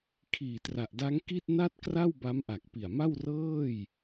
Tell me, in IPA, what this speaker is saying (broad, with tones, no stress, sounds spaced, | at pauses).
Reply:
kʰ iː˨˩ t r a˨˩ ʔ d a˦˥ ŋ k i˥˩ t̚ n a˥˩ t̚ k r a˥˩ w b a˦˥ m ʔ a˨˩ k̚ p i˨˩ a̯ m a˥˩ w r ɤː˥˩ j